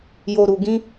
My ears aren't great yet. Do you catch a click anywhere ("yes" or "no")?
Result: no